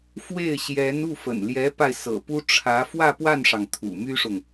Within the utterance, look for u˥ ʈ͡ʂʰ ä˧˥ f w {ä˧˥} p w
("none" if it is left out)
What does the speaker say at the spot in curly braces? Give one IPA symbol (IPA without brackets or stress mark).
ä˥˧